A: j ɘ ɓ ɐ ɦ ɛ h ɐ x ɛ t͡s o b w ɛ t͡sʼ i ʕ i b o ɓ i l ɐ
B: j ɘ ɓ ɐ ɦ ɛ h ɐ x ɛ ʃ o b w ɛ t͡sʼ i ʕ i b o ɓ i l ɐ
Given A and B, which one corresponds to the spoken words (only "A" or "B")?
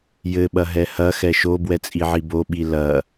B